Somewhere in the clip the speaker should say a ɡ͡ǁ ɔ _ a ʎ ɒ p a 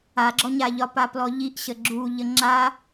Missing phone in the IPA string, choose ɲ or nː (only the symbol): ɲ